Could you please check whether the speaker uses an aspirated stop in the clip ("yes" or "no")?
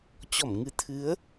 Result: yes